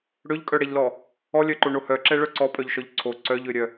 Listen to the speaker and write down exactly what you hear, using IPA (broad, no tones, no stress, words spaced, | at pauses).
ɽøʎkʼœɽɛʎlɔ | ɔlʲœǃoɳo hœǁɛ ɭœǀɔpʼœʎʃɔʎ ǀʰo ǀœʎøɾʲœ